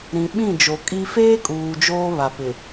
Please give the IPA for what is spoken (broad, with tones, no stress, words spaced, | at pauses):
ɾĩ˨ɓĩ˦˨ d͡ʒo˨kʼi˦ feː˦ kʼuː˨d͡ʒoː˦ βa˨pɪ˨